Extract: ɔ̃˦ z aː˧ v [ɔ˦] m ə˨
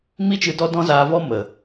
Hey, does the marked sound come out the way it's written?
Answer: yes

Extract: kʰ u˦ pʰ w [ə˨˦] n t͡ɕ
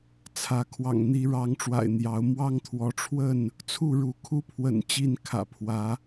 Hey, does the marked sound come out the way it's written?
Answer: no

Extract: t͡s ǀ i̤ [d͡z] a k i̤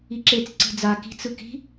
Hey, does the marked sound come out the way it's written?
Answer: yes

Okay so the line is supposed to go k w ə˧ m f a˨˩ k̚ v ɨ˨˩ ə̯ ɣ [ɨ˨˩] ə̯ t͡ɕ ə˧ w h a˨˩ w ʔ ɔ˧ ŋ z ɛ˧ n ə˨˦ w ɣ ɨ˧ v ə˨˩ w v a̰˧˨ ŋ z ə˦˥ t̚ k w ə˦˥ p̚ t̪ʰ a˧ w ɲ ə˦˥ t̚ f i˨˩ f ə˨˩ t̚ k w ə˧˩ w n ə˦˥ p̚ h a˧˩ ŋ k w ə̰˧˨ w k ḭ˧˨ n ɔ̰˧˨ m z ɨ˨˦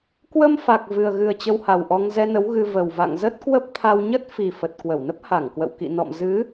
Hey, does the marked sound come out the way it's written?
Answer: yes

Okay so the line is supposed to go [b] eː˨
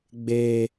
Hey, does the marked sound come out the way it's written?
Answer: no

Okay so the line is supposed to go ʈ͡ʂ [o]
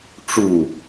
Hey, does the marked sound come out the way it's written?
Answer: no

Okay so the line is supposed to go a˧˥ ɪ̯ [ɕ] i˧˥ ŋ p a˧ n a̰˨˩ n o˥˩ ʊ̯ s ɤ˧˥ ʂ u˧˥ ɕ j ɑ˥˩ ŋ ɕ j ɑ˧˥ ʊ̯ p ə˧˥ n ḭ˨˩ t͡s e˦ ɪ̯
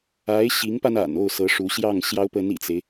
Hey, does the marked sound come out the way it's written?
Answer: yes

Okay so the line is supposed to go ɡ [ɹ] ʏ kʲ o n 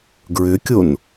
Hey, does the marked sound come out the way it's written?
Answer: yes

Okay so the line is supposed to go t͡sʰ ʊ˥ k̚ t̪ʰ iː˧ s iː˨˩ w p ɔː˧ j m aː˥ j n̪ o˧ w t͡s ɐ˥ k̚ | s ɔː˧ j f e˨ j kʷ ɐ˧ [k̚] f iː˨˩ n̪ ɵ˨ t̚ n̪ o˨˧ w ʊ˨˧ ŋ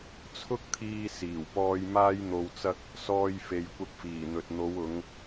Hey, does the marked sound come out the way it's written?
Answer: yes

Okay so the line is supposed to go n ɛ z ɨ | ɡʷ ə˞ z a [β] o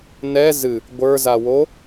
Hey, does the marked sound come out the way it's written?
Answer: no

